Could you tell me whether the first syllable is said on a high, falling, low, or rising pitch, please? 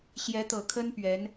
rising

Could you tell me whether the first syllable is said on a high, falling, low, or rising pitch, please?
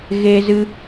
high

